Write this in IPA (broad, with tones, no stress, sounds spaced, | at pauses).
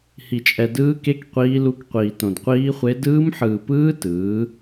h i˧ t͡ʃʼ ɛ˧ d ɯː˦˥ k e˦˥ k qʷ iː˦˥ l u˦˥ k qʷ iː˧ t õ˧ d qʷ iː˦˥ χʷ e˦˥ d ɯː˦˥ m ħ ɯː˧ p ɯː˦˥ t ɯː˨˥